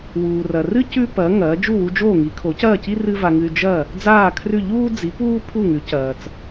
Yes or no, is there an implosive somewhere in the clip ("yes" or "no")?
no